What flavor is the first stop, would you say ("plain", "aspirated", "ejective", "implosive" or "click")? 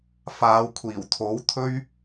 aspirated